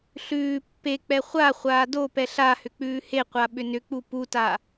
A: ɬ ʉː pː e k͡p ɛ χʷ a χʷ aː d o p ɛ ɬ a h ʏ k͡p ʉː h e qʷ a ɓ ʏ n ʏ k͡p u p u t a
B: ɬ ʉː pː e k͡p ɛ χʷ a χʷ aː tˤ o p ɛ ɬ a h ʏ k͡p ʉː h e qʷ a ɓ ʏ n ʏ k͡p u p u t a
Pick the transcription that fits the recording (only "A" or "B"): A